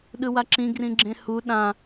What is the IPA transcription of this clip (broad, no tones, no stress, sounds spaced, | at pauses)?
ɗ ɯ w a ǁ ĩ ɡ r ĩ ɡ͡ǁ ẽ h u ɗ ã